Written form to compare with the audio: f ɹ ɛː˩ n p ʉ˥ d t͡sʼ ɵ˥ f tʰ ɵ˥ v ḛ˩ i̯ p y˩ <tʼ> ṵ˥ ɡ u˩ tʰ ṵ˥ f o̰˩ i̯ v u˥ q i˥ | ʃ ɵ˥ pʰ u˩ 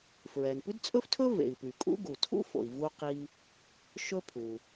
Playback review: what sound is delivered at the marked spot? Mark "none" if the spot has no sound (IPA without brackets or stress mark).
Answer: kʼ